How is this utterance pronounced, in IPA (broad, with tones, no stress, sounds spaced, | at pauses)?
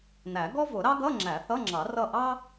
n æ˨˩˦ ɡ ɔ˥ v ʊ˨˩˦ ɾ ɑ˥ ɡ ʌ˧˥˧ ŋ͡ǁ æ˨˩˦ θ ʌ˧˥˧ ŋ͡ǁ ɑ˨˩˦ r ʌ˦˨ ʔ ɑ˥